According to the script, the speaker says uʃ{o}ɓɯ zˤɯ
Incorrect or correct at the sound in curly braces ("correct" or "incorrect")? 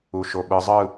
correct